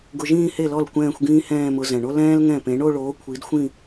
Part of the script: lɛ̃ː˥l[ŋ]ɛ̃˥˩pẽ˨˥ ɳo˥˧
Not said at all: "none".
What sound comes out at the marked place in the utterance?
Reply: ŋ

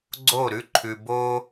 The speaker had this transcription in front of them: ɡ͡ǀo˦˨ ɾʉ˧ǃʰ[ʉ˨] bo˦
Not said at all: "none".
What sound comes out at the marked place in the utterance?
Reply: ʉ˨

